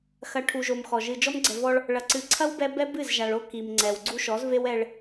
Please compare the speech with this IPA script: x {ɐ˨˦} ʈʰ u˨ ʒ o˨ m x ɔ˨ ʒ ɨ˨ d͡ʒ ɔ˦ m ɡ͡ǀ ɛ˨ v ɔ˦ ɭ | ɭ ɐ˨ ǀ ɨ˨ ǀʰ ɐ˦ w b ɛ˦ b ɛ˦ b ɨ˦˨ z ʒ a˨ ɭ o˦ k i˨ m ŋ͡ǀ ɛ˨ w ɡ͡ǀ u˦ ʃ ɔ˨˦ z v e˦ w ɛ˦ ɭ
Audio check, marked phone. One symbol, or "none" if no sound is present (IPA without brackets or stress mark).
ɐ˨˦